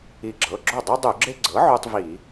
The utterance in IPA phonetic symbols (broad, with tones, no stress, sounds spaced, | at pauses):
i˧˩ ɡ͡ǁ ɤ˩˧˩ ɡ͡ǁ o˥˩ dˤ u˦ dˤ u˧˩˧ ɡ͡ǁ e˦ ɡ͡ǀ ɤ˩˥ ʕ u˦ tˤ v i˧˩˧